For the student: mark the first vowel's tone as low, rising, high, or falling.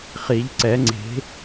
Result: rising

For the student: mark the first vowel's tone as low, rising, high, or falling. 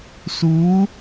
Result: rising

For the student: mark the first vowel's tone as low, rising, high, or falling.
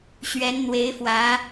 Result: rising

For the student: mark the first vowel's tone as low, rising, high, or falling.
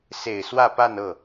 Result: low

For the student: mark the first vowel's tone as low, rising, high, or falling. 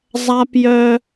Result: high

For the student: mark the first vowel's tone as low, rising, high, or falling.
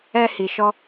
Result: high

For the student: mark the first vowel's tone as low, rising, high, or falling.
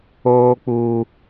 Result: high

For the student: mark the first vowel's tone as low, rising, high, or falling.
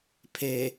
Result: low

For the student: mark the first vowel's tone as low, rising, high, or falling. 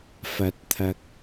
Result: low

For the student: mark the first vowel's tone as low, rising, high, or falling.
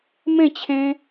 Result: falling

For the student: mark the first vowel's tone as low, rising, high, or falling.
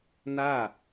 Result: falling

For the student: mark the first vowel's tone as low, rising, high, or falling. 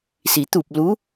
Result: low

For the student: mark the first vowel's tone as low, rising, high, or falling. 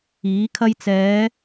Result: rising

